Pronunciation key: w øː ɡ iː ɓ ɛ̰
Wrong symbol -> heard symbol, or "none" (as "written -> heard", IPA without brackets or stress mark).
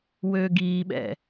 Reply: none